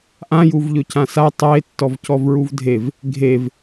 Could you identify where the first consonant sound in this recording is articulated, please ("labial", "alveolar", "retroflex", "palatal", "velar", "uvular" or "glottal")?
glottal